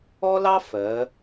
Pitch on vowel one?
high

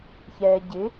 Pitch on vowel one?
low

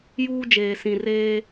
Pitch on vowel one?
high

